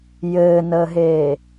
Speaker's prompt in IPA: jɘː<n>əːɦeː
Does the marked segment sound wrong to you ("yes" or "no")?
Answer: no